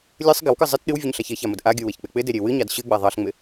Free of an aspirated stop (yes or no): yes